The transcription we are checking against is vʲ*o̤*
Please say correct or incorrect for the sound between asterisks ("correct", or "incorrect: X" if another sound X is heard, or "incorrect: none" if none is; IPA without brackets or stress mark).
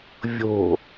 correct